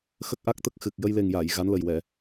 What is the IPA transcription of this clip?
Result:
x ə˦˥ k̚ ʔ a˦˥ k̚ t̪ ə˦˥ k̚ x ɨ˨˩ k̚ j ə˧ j l e˨˩ ŋ j a˨˩˨ j ɣ a˧˥ n l ə˨˩ j w ɛ˨˩˨

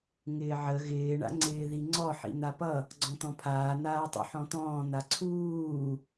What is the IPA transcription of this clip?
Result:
ŋ ɪː ʕ ə ɣ ɪː ɳ a̰ ŋ͡ǀ ɪː ð i ŋ͡ǀ ɔ ħ ḭ n̪ a p ʌ | ɡ͡ǀ ɔ̃ t̪ ɔ̃ pʰ aː n̪ aː tˤ ṵ ħ ɔ̃ t̪ ɔ̃ː n̪ a ǀʰ uː

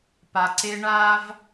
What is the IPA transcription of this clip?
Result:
p a˨ ǀ e˧ ɳ a˦ v

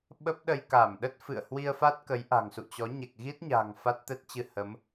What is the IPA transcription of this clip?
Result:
ɓ ə˦˥ p̚ ɗ ə˧ j k a˧˩ m ɗ ə˦˥ t̚ f ɨ̰˧˨ ə̯ h w i˧ ə̯ f a˦˥ t̚ k ə˨˦ j ʔ a̤˨˩ ŋ s ṵ˧˨ t͡ɕ ɔ˨˦ ɲ ɛ˨˩ k̚ ɣ i˦˥ t̚ ɲ a̤ː˨˩ ŋ f a˦˥ t̚ t̪ ɛ˦˥ t̚ t͡ɕ ɨ˧ h ə˨˦ m

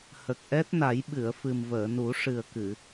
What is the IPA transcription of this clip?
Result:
h ə˨˩ k̚ ʔ ɛ˦˥ t̚ n a˨˩˦ j ɓ ɨ˨˩˨ ə̯ f ɨ˨˩ m v əː˨˩˨ n u˨˩˦ ʂ ɨ˨˩ ə̯ k ɨ˨˩˨

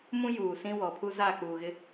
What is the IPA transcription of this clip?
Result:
m ũ˦ j uː˨ s ĩ˦ w ɔ˨ pʰ u˦ z aː˦˨ k͡p uː˨ ɣ ɪ˦

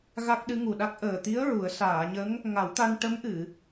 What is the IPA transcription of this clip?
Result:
ɣ a˦˥ k̚ ɗ ɨ˧˥ ŋ u˨˩ ɗ a˦˥ k̚ ʔ əː˨˩ t̪ i˧˥ ə̯ ɹ u˨˩˦ ə̯ s aː˨˩˨ ɲ ə˧˥ ŋ | ŋ a˨˩˦ w t̪ a˧ n ʈ ə˧˥ m ʔ ɨ˨˩˨

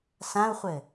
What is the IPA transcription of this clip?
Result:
s ã u̯ χʷ ɘ

